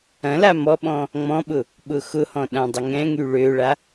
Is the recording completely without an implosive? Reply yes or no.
no